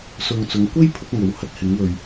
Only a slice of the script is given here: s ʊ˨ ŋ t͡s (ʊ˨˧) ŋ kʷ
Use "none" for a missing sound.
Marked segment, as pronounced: ʊ˨˧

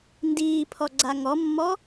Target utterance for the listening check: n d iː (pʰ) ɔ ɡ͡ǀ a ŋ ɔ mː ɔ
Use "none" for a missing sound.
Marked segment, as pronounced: pʰ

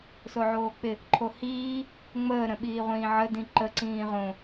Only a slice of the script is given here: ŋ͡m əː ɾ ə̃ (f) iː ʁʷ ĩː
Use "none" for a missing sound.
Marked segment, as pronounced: ɓ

